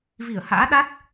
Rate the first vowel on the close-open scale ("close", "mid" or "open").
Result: close